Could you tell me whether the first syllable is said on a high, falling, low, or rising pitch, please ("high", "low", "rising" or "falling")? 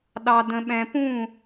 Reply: low